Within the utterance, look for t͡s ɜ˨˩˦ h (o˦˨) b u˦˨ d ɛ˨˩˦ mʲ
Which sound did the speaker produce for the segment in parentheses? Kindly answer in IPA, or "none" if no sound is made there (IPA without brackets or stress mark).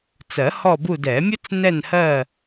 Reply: ɔ˦˨